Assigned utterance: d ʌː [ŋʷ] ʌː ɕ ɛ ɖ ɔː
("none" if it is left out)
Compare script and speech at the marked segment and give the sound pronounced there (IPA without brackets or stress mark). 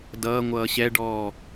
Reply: ŋʷ